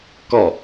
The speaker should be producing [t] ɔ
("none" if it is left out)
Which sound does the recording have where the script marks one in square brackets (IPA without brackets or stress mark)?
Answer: k